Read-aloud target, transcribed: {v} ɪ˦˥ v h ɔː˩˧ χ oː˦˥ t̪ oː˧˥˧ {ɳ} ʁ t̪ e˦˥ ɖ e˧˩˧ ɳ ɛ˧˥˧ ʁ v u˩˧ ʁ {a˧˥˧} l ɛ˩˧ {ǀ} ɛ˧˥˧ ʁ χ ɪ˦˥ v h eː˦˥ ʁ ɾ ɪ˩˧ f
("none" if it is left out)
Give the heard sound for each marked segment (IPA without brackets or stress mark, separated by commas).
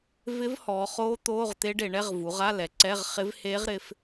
v, none, a˧˥˧, ǀ